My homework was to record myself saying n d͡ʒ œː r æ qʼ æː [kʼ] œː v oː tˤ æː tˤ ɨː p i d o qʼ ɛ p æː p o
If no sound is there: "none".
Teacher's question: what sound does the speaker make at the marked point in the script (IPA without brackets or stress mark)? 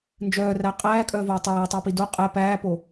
kʼ